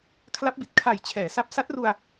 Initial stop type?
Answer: aspirated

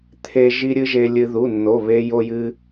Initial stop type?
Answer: aspirated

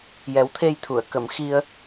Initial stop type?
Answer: aspirated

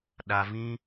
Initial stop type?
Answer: implosive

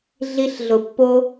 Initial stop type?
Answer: plain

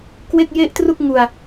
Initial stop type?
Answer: plain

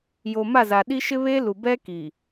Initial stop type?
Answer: implosive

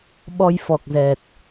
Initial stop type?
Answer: implosive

